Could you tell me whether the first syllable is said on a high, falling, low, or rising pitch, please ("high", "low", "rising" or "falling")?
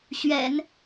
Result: low